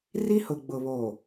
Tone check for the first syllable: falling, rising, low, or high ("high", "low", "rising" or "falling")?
high